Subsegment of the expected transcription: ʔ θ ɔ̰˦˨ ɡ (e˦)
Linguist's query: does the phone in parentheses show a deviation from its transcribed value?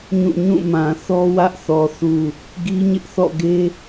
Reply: no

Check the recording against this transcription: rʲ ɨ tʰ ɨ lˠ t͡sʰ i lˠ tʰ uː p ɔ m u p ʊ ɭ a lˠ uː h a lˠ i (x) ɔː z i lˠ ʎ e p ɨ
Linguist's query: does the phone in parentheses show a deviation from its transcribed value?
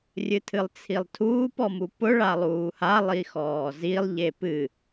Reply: no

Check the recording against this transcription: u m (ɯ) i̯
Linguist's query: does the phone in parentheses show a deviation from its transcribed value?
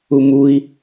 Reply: yes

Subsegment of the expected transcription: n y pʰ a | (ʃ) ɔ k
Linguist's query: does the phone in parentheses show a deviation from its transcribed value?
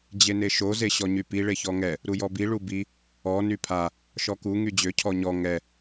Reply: no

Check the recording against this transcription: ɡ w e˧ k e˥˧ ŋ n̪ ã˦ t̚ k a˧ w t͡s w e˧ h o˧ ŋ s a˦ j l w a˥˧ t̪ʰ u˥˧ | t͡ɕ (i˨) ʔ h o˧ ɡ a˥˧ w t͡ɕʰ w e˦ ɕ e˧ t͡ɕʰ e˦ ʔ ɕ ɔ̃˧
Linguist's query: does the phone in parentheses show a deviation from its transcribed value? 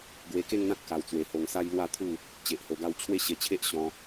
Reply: yes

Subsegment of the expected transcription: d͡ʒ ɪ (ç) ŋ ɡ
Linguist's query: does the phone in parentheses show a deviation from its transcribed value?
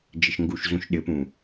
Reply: yes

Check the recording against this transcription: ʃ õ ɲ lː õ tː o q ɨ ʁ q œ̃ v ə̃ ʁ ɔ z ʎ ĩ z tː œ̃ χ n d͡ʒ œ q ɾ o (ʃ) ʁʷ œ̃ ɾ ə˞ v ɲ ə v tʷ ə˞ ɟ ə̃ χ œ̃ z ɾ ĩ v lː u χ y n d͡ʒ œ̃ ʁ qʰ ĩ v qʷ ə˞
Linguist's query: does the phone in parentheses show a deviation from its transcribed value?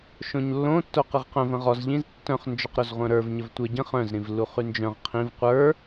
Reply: yes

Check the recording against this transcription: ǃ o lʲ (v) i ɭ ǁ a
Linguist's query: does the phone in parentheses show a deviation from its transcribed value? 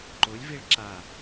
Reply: no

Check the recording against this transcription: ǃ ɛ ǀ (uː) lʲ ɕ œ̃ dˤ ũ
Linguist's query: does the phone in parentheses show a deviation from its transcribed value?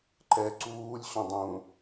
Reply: no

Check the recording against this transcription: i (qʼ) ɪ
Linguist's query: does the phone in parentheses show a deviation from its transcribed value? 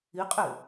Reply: no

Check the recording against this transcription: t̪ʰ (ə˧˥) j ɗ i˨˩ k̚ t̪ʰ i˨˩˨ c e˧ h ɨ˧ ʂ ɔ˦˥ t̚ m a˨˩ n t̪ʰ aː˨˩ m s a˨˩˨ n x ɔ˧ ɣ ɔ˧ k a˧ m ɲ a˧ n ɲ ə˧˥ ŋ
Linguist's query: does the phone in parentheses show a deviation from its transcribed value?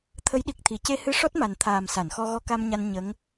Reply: no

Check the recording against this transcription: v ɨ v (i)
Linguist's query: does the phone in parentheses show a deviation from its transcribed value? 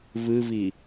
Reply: no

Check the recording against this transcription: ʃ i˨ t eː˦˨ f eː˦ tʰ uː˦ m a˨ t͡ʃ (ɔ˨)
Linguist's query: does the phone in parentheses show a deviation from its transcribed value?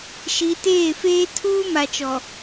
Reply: no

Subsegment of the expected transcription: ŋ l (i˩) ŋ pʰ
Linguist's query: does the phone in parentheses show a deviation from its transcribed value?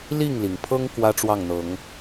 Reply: no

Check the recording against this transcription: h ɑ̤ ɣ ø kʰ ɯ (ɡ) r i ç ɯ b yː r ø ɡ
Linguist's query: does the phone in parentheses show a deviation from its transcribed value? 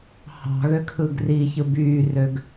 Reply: no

